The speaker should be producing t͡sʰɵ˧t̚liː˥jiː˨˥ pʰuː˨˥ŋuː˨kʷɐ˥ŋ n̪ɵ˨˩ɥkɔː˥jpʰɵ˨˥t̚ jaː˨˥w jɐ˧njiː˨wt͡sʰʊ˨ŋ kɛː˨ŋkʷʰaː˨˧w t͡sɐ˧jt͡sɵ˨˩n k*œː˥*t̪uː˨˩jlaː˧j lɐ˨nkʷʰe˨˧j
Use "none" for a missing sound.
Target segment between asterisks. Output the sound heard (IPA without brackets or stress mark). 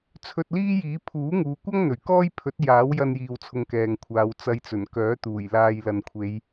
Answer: œː˨˥